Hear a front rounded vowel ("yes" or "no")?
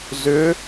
yes